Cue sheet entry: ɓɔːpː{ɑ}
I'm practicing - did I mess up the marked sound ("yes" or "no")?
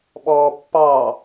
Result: no